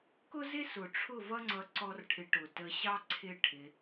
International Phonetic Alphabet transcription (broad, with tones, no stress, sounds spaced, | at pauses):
k ʊ˦ z ɪ˦ s ʊ˨ ʈ͡ʂʰ ʊ˦˨ v ʌ˦ ŋ͡ǀ ʌ˧ ǀ ɔ˦ r ʈʰ ɪ˧ ʈ ʊ˨ t ə˧ ɕ ɑ˦ ǀʰ ɪ˦ ʈʰ ɪ˧